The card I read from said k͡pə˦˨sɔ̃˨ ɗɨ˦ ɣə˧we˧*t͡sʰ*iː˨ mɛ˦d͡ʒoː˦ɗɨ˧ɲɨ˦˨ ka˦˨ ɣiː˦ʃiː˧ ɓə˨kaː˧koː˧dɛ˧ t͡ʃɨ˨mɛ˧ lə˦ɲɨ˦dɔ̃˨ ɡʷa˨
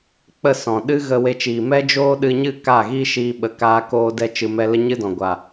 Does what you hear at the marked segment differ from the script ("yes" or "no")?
yes